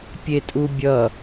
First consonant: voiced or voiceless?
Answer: voiceless